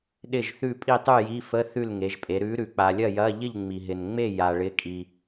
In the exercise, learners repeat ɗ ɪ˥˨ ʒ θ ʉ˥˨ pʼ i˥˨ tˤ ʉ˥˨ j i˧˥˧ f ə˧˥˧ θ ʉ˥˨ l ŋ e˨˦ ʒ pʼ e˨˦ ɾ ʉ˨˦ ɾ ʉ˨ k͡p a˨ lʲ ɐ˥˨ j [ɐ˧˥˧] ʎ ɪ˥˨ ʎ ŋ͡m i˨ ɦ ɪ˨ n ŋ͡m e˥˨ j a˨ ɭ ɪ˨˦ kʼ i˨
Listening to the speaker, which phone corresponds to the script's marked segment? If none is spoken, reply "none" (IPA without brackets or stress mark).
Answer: ɐ˧˥˧